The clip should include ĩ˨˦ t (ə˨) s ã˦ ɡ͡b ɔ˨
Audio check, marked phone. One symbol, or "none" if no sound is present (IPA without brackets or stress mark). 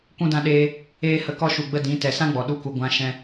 ɛ˨